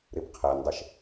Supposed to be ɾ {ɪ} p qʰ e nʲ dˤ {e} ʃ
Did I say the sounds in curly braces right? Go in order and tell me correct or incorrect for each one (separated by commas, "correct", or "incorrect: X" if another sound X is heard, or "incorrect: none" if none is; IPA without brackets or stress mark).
incorrect: i, correct